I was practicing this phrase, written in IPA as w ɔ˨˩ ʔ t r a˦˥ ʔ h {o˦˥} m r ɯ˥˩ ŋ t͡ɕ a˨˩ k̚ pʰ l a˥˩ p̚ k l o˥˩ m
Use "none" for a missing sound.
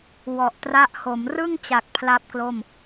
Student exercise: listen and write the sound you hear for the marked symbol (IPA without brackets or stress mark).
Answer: o˩˦